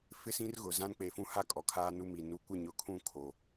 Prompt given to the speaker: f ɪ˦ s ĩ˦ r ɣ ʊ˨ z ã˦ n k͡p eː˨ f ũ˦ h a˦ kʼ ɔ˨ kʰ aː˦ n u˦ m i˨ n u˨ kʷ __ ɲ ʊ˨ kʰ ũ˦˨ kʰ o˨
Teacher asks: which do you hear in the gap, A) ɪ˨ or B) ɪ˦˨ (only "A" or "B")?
B